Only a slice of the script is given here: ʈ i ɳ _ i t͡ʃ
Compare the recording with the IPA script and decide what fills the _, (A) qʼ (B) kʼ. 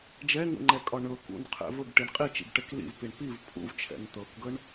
A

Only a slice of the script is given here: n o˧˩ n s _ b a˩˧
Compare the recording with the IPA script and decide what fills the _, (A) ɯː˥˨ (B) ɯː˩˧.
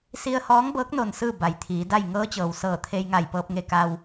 A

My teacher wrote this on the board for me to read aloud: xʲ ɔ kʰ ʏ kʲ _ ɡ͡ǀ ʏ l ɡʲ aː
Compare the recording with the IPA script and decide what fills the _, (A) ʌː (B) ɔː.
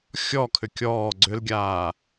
B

